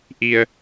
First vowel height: high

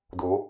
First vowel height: mid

